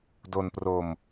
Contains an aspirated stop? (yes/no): no